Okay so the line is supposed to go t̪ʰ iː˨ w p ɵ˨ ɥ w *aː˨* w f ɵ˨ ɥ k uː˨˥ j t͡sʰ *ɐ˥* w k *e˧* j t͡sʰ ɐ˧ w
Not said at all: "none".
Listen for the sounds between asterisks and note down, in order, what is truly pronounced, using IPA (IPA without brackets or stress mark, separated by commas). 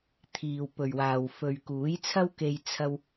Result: aː˨, ɐ˥, e˧